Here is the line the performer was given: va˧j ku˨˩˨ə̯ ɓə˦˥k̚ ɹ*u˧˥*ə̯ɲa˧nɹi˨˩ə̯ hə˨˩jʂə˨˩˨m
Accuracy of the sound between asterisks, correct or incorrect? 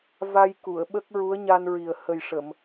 correct